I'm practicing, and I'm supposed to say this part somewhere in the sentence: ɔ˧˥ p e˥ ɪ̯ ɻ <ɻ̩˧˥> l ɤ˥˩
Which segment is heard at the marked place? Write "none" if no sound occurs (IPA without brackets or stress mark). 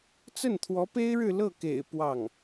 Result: ɻ̩˥˧